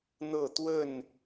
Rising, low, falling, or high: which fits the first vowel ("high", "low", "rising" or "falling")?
falling